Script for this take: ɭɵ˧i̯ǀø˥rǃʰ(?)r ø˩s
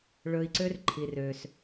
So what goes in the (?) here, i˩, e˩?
i˩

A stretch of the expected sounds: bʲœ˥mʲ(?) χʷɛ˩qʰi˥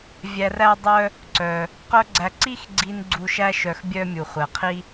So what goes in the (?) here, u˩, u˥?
u˩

